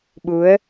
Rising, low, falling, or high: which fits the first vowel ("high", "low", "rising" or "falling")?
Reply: rising